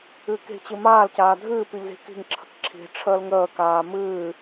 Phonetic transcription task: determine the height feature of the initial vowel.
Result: high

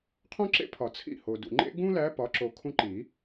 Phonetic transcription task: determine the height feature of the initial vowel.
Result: mid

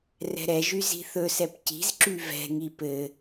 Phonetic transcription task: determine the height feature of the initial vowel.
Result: mid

